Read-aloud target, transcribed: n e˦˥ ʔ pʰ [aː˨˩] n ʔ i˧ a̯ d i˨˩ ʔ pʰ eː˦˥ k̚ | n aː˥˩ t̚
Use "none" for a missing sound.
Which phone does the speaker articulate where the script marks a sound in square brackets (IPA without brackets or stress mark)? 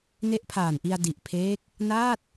aː˨˩